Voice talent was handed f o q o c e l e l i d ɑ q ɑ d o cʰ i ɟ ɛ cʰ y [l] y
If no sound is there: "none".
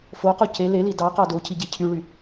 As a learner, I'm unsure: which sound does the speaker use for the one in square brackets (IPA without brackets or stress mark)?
ɭ